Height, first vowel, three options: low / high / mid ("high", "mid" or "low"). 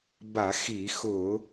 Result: low